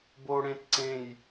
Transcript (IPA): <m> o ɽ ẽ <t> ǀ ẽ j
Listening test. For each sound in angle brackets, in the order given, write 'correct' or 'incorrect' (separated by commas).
incorrect, correct